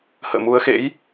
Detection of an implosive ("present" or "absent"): absent